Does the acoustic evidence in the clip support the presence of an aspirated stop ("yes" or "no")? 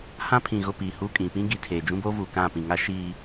yes